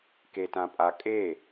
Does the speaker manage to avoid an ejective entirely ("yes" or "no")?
no